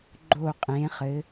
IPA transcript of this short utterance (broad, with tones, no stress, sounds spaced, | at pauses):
ɡ͡ǃ o˧˩ qʼ ẽ˩˧ χ ɘ˩˧